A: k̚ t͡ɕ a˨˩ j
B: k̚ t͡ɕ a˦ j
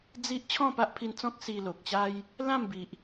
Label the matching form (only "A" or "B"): B